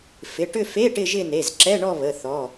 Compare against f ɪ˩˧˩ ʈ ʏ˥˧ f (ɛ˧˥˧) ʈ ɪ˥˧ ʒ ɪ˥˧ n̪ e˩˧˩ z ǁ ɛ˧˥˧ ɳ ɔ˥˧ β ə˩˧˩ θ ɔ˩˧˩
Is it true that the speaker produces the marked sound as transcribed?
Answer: no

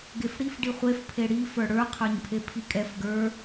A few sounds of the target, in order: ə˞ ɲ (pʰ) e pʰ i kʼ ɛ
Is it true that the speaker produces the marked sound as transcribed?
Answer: yes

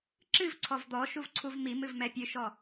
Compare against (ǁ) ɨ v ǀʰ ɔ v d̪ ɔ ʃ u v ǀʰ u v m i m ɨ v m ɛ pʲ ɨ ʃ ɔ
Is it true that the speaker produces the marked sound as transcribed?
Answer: yes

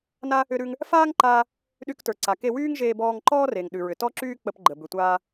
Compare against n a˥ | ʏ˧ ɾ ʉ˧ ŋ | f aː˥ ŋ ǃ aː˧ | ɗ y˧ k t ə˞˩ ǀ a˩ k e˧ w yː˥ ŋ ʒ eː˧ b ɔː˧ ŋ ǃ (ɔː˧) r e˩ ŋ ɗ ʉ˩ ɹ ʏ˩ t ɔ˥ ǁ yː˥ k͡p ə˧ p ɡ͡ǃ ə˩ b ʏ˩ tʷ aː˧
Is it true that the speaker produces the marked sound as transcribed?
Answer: no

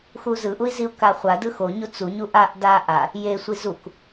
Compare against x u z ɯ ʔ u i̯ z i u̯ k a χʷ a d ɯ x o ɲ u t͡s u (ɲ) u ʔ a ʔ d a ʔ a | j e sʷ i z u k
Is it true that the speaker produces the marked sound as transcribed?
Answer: yes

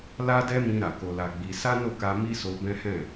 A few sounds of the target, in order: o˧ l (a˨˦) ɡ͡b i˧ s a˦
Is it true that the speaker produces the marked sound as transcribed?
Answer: no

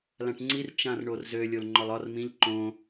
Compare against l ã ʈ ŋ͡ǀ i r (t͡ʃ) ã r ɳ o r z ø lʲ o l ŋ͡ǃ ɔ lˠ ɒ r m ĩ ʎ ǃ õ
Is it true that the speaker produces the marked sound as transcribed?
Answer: yes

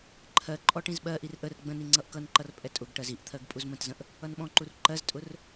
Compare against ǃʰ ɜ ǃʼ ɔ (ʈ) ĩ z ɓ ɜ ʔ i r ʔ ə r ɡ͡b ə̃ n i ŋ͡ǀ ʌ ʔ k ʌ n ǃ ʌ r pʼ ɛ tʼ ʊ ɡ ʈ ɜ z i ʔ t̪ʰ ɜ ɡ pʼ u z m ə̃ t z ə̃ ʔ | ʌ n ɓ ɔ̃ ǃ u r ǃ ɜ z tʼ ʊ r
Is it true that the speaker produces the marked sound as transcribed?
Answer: yes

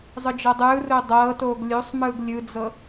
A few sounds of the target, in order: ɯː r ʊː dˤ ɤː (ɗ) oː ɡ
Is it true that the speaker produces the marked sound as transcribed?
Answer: no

